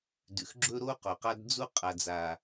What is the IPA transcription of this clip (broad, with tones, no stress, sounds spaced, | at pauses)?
d ʉ˨ x ɡ͡ǁ ɵ˦ ɾ o˦ q o˨ q a˦ d d͡z u˦ qʼ a˨ d͡z a˨